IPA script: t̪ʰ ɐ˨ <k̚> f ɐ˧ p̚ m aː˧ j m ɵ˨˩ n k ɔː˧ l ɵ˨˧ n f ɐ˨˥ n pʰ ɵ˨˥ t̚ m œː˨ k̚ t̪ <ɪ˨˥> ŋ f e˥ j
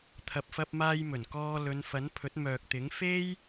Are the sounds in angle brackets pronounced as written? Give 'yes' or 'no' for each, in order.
no, yes

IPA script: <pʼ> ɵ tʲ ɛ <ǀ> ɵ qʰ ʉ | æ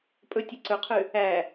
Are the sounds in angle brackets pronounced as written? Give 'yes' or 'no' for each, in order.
yes, yes

